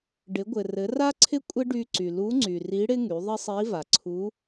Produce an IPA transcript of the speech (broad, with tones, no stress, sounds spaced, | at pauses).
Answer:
ɖ ɪ˩˧ ɡʷ ɘ˩ r ɘ˩˧ r a˥ ǀʰ ɪ˥ kʷʼ ɪ˥ ɖ y˧ ǀ y˩ l u˧˥ ŋ͡ǀ y˩ r i˧˥ ɽ ɪ˥ ŋ y˩˧ ðˤ ɪ˥ sˤ i˧˥ v a˩ ǀʰ u˧˥